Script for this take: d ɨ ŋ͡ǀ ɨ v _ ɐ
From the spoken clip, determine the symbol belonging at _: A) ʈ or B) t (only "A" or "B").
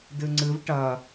A